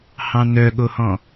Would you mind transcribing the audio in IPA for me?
h ɑ̃ n œ ɠ o h ɔ̃

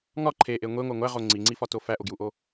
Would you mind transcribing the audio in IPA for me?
ŋ ɒ ǃʰ e ʔ e ŋʷ e ŋʷ æ ŋʷ æ ʁ o ŋ͡ǀ i ŋ͡ǀ i f ɒ t o f æ ʔ o ɡ j u ʔ o

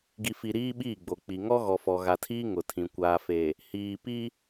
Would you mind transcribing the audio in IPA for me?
ɡ i˨ f i˨ ɾ iː˦ ɓ iː˦˨ ɡ͡b o˨ k͡p i˨ ŋ ɔ˦ ɣ ɔ˨ f ɔ˨ ɣ a˨ tʰ iː˦ ŋ ʊ˨ tʰ ĩ˨ kʷ aː˨ f e˨ | h iː˨ p i˦

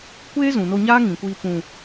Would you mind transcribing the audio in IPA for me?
kʷ eː˦ z ũ˨ n o˧ ɲ aː˦ ŋ ĩ˨ kʷ iː˧ p ũ˨

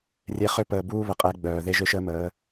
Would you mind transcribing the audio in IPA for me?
rʲ e˨ χ ø˦ p əː˨ b uː˦ β ə˨ qʼ ɛ˨˦ ɡ͡b œː˨ ð e˦ ʒ ø˦ ʃ əː˦ m əː˨˦

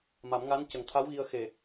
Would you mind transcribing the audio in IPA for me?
m a˨˩˦ m ŋ a˧˥ n c ə˨˩ ŋ t̪ʰ a˧˥ w ɣ i˧ ə̯ x e˨˩

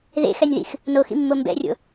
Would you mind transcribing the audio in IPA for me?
ð ḛ x ɛ nʲ ð ḭ x | n o x ḭ mː o m b ɛ̰ rʲ o̰

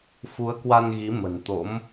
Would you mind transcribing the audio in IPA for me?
f u˨˦ ə̯ k w a˧ n ɣ i˨˦ m ə̤˨˩ n t̪ o̰˧˥ m

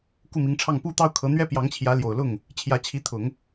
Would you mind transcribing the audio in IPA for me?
k u˥˩ m i˧˥ ŋ ʈ͡ʂʰ ɑ˥˩ ŋ p u˥ t̪ ɑ˥ ʊ̯ kʰ ɤ˧˥ n̪ ɥ ɛ˥ p j ɑ˧˥ ŋ t͡ɕʰ j ä˧˥ l j o˨˩ ʊ̯ l ʊ˥˩ ŋ | t͡ɕʰ j ä˧˥ t͡ɕʰ i˧˥ t̪ʰ ʊ˨˩˦ ŋ

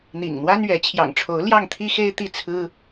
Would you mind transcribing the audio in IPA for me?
n̪ ḭ˨˩ ŋ n̪ w a˥ n ɥ ɛ˧˥ t͡ɕʰ j ɑ̰˨˩ ŋ ʈ͡ʂʰ o˧˥ ʊ̯ l j ɑ˥˩ ŋ t̪ʰ i˥ x e˥ ɪ̯ t̪ i˥˩ t͡sʰ ɹ̩˥

